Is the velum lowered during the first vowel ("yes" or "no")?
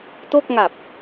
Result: no